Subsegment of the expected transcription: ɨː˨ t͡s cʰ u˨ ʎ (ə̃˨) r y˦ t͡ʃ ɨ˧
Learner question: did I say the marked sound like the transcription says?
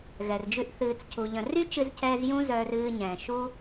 yes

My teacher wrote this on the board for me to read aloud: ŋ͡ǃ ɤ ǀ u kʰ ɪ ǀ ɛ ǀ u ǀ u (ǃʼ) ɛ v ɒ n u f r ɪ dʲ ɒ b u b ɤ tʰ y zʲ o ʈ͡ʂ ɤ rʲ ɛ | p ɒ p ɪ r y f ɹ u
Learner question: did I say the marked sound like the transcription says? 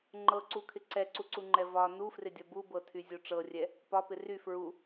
no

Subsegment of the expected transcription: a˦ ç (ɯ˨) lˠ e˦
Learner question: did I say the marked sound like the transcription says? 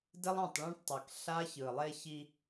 yes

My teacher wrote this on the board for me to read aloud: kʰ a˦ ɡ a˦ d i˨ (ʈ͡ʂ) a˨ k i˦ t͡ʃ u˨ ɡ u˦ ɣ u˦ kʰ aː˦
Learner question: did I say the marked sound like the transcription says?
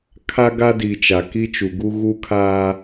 no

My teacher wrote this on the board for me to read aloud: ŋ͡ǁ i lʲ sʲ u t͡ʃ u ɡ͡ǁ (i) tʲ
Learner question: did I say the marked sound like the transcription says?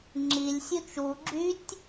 no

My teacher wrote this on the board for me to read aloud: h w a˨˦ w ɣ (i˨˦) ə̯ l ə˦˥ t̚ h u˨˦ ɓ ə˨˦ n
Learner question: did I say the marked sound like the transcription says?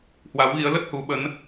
yes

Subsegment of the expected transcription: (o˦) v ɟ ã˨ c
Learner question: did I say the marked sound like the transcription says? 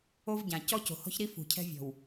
yes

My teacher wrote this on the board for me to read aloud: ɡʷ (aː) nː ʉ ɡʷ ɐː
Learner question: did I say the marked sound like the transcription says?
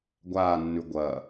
yes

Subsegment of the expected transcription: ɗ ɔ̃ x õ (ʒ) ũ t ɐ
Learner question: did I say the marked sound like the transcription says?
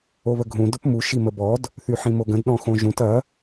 yes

